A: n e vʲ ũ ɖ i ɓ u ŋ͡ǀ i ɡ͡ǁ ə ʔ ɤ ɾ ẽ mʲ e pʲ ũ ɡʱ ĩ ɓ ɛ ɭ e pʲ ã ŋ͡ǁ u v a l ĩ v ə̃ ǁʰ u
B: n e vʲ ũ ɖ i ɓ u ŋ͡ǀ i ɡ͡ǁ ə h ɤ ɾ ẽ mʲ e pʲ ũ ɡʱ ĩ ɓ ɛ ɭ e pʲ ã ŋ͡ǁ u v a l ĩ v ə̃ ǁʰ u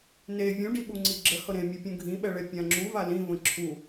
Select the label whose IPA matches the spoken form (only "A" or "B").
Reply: B